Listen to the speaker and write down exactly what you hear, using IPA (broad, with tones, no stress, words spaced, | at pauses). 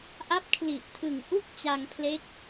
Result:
ʔa˦˥p̚kʰli˨˩ʔtʰɯ˨˩ŋ ʔu˥˩k̚ t͡ɕa˧ŋpʰle˦˥k̚